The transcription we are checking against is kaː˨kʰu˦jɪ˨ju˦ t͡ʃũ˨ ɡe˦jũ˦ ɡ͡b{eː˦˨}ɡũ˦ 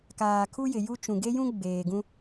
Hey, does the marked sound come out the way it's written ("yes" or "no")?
no